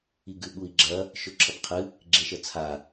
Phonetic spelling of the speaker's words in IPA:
iɡʉɓui̯ɡ͡ǁɐ | ʃɵǁʰɐpqʰɨ | ɡ͡ǁeʃɐt͡sʰa

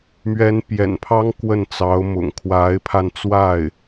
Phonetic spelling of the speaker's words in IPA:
mɥɛ˧˥npjɛ̰˨˩npʰɑ˥ŋ kwə˥˩nt͡sɑ˧˥ʊ̯mʊ̰˨˩ŋ kʰwa˧˥ɪ̯pʰa˧nt͡swa˥˩ɪ̯

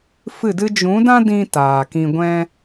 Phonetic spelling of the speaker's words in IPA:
fɨ˦˨dɨ˦ d͡ʒũ˨˦dã˦ dĩ˦ taː˨kĩ˧ɡʷɛ̃˦

